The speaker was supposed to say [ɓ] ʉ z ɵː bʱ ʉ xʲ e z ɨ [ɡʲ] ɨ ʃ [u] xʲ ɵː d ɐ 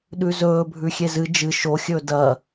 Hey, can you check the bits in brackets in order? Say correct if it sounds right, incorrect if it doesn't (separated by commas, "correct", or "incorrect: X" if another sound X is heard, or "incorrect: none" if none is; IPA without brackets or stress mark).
incorrect: ɗ, incorrect: d͡ʒ, incorrect: o